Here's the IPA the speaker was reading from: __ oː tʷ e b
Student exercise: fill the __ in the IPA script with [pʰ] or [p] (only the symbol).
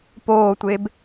p